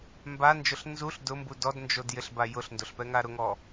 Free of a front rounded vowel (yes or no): yes